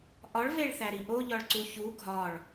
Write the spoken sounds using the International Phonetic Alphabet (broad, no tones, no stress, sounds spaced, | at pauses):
ʔ ɒ ɭ v e ɭ θ æ ɾ i ʔ o ʎ ɒ ɭ ǀ u ç u ɡʱ ɒ ɭ